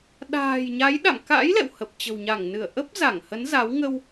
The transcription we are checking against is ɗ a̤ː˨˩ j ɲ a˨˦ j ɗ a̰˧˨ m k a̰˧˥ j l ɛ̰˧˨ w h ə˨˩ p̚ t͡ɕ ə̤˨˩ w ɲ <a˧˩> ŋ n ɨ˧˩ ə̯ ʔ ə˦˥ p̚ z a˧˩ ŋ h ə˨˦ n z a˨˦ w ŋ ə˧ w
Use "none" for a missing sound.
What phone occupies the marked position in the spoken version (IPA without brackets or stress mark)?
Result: a˧˩